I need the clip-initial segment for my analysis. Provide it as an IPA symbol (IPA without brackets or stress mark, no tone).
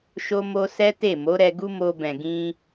ʃ